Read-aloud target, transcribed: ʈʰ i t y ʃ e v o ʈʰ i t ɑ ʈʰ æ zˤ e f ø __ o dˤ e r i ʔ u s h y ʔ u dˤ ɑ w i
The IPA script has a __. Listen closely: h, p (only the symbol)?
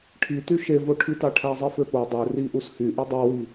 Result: p